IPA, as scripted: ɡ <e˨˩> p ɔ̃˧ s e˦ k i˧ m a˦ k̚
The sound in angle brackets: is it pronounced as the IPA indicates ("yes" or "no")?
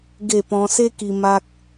no